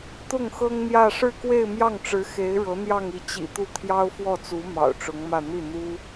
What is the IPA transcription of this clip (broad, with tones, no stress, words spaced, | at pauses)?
t̪ʊ˥˩ŋxɤ˥ŋn̪jä˥˧ ʂɻ̩˥˧kwe˥˧ɪ̯ mjɑ˥˩ŋʈ͡ʂɻ̩˧˥ xe˧˥ɪ̯ɻɤ˧˥n̪jɑ˥˧ŋ i˥˩ t͡ɕḭ˨˩t̪u˥˩ t̪ʰjɑ˥ʊ̯fwɔ˥˩t͡su˧˥ mɑ̰˨˩ʊ̯ʈ͡ʂʊ˧˥ŋmä˥˧ n̪i˥˩n̪u˥